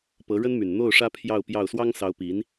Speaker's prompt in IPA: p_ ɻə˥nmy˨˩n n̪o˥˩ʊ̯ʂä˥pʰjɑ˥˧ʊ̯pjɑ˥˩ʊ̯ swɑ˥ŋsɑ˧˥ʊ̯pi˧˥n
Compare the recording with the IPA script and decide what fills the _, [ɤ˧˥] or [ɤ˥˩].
ɤ˧˥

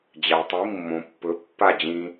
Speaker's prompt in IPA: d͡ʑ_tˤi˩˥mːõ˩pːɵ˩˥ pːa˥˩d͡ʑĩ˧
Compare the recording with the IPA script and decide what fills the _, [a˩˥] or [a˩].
a˩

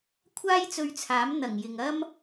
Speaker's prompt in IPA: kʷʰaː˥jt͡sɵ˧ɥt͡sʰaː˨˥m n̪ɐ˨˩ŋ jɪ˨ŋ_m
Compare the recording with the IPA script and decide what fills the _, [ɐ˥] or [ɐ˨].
ɐ˥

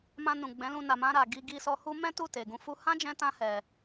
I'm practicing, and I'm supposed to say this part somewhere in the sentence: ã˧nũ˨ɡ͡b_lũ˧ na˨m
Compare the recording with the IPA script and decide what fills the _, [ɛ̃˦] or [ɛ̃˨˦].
ɛ̃˨˦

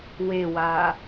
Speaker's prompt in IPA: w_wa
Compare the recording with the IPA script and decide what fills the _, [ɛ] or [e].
e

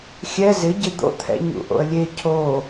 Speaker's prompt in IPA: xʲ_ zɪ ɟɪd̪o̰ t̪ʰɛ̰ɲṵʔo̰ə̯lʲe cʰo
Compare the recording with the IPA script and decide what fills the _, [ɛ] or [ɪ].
ɛ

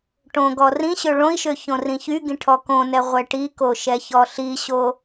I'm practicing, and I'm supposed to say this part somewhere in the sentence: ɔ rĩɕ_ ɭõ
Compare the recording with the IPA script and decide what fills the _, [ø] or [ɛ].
ø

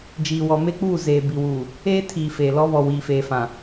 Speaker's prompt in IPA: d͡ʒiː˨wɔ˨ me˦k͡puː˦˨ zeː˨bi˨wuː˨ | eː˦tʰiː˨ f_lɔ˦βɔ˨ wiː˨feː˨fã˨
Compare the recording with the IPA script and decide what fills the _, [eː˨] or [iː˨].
eː˨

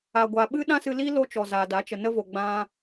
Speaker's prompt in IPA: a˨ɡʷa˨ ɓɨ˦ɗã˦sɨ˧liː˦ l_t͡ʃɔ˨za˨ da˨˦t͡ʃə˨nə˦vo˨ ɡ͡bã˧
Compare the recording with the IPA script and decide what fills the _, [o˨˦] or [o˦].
o˦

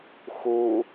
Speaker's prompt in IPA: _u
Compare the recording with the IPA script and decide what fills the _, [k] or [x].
x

